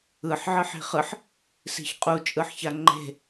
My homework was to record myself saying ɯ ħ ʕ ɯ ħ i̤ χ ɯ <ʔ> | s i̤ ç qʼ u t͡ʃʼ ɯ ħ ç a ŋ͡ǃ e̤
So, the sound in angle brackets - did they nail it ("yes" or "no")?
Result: no